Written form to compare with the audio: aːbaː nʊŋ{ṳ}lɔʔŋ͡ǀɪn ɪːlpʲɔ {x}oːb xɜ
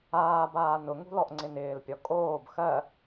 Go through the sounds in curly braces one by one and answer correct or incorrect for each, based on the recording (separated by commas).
correct, incorrect